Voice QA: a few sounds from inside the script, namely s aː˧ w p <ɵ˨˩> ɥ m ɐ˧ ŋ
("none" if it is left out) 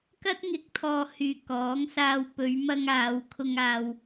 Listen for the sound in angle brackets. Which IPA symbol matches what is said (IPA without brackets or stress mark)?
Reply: ɵ˨˧